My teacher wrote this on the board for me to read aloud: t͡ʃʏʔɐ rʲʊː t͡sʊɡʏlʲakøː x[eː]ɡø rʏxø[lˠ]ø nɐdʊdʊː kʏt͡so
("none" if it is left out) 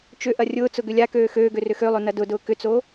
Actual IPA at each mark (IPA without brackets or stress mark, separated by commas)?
øː, lˠ